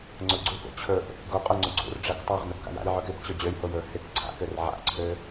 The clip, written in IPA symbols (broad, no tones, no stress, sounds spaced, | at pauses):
ŋ͡ǀ ʊ ɡ͡ǀ u k o̰ t͡ɕʰ ɵ ʔ | ɡ o qʼ o ŋ͡ǀ ʊ ɡ͡ǀ ṵ r ɖ͡ʐ ɛ k tˤ a ʁ n ɵ b k a̰ j a̰ j ʕ ø k ɪ b t͡ɕ ɵ d͡ʑ ø j h o j ɵ h ɪ k ǀʰ a̰ k ø r ʕ a̰ ǀʰ ø